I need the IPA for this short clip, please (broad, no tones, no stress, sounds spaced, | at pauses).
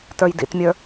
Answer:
t ə˞ j d ḭ t mʲ ə˞